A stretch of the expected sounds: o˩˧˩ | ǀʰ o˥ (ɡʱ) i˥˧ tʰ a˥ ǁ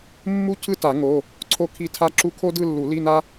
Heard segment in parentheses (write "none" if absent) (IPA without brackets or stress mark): kʰ